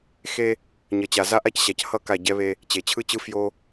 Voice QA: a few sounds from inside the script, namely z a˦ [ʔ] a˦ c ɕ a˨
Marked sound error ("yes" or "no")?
no